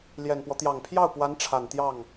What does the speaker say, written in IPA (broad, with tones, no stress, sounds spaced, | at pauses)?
l j ɛ˨˩ n p w ɔ˦ t̪ j ɑ˨˩ ŋ pʰ j ɑ˥˩ ʊ̯ p w a˧˥ n ʈ͡ʂʰ a˨˩ n t̪ j ɑ˥˩ ŋ